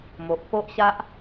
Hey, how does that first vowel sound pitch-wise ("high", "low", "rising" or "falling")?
low